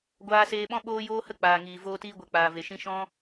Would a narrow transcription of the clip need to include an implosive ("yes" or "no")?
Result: yes